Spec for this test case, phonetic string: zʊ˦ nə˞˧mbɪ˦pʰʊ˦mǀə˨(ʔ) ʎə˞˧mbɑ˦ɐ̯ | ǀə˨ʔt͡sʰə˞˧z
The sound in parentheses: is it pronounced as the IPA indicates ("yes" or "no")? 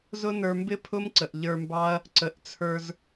yes